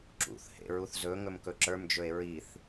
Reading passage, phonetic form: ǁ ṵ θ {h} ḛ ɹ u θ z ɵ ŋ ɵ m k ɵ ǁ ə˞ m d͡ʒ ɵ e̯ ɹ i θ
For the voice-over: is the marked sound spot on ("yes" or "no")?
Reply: yes